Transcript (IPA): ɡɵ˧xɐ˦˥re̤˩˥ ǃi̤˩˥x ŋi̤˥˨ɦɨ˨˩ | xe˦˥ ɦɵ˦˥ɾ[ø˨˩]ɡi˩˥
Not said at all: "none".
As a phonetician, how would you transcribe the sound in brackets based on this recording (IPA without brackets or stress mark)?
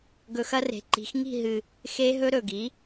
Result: ɵ˨˩